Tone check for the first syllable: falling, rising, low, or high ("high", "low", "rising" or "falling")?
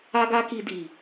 high